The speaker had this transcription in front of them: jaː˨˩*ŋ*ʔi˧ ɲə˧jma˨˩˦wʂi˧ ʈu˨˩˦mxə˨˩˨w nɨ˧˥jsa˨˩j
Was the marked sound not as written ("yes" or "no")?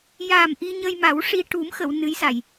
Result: yes